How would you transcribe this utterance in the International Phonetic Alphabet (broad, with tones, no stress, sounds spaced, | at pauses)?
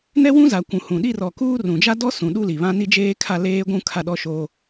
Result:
n ɛ˦ w ũ˦ z a˨ kʷ ũ˨ h ũ˨ ɗ i˦ r ɔ˨ k uː˦ r ũ˨ d͡ʒ a˦ d ɔ˦ s ũ˨ ɗ u˦ l i˨ β ã˦ n i˦ d͡ʒ eː˦ kʰ a˦˨ l eː˦ ɡʷ ũ˦ kʰ a˦˨ ɗ ɔ˦ ʃ oː˦